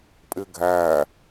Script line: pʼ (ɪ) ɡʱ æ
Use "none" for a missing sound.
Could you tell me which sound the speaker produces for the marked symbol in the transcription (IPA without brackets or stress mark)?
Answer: ɪ